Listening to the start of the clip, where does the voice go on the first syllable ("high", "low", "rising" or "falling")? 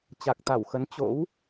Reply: low